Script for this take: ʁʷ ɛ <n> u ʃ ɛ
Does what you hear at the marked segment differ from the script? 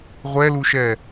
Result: yes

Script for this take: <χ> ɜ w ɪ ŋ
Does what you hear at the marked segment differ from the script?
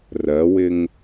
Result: yes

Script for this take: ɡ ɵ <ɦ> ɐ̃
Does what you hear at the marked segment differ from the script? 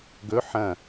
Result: yes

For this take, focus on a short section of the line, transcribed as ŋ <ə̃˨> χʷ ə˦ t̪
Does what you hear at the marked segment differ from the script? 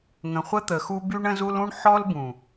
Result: no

